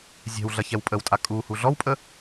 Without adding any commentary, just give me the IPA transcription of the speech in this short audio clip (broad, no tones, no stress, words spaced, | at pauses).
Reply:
zʲɛ̤wɮɐçɛw pʼəwtʼa kʼuhu ɮɔwpʼə